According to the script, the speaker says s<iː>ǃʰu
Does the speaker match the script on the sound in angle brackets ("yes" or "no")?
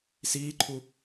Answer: yes